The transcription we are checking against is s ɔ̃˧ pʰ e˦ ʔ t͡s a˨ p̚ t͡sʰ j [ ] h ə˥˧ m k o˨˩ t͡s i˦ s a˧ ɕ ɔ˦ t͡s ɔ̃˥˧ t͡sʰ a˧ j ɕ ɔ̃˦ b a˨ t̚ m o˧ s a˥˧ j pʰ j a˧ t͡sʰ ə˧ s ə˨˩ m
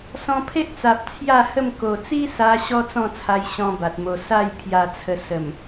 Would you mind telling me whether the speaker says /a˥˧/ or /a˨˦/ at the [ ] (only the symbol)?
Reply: a˥˧